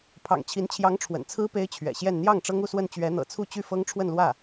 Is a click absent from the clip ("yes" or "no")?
yes